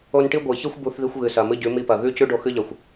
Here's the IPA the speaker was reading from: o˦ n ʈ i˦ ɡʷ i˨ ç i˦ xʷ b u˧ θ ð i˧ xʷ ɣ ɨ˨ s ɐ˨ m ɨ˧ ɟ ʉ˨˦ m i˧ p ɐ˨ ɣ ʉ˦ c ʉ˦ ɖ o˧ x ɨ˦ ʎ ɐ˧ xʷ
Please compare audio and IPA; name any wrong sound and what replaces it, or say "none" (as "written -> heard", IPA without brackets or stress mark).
none